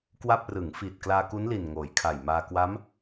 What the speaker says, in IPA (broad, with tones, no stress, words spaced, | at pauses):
kwa˥˩p̚ rɯ˩˦ŋ fi˨˩t̚klaː˧ku˦˥nli˨˩n ŋoː˩˦jkʰa˨˩jmaː˧ kwa˦˥m